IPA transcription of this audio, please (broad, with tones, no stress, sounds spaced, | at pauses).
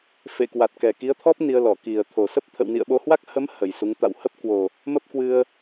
f ḛ˧˨ k w a˨˩ t̚ k ɛ˨˩ k i˨˦ ə̯ t̪ʰ ɔ˦˥ p̚ n i˧ ə̯ l ɔ˧˩ k i˨˩ ə̯ t̪ʰ o˨˩ s ə˦˥ p̚ t̪ʰ ə̰˧˨ w n ḭ˧˨ ə̯ ɓ o˧ h w a˦˥ k̚ h ə˨˦ m h ə˨˩ j s u˨˦ ŋ t̪ a̰˧˨ w h ə˦˥ p̚ k w o˨˩ | m ə˦˥ p̚ k w ɨ˧ ə̯